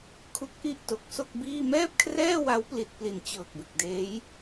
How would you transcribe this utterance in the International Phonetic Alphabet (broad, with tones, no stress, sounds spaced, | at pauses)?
kʰ u˦˥ k̚ ʔ i˥˩ ʔ t o˨˩ k̚ s o˥˩ k̚ b iː˥˩ m ɛː˥˩ p̚ kʰ r ɛː˥˩ w a˦˥ w p l i˨˩ t̚ p l i˨˩ n t͡ɕ ɤː˨˩ k̚ b e˨˩ k̚ d eː˦˥ j